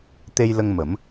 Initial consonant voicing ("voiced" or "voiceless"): voiceless